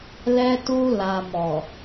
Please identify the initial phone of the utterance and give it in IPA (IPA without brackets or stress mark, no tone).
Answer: l